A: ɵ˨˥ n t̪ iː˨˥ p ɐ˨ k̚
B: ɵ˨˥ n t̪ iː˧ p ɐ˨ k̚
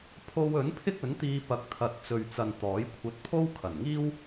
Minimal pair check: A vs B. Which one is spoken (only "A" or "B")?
B